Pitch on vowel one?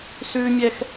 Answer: high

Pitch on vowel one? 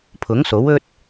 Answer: rising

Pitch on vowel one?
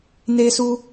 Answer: high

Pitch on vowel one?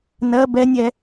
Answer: rising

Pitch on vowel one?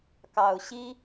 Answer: low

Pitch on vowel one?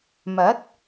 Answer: rising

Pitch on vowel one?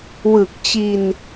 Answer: low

